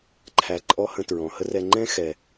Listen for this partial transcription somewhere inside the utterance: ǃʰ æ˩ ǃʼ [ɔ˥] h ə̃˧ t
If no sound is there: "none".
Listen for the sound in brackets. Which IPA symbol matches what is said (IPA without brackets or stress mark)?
ɔ˥